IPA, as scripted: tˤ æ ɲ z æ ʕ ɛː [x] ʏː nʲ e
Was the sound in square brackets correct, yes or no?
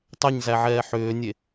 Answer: no